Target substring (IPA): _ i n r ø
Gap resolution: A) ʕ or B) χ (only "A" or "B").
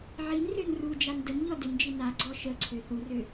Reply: A